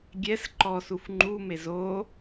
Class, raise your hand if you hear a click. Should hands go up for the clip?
yes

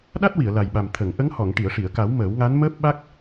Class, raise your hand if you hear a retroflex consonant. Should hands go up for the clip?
yes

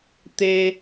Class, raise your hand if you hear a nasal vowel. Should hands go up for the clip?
no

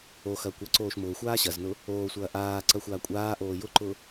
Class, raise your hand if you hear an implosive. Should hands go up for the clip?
no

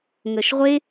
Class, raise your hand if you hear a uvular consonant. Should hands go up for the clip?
yes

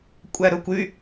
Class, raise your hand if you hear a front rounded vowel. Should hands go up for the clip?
yes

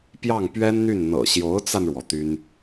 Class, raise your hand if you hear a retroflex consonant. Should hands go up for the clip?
yes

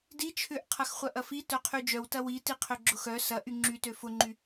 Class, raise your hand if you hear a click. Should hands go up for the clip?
yes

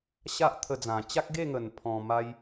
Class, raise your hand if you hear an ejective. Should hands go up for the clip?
no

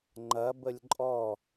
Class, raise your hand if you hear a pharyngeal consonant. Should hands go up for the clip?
no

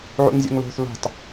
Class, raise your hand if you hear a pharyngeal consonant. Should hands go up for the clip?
yes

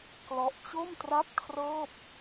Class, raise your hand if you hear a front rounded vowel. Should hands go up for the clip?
no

